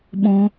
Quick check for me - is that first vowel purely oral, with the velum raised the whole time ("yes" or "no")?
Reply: no